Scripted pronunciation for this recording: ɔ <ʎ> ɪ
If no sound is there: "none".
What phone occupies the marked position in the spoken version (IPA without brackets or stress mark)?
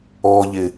ʎ